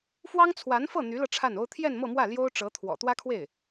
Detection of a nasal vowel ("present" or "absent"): absent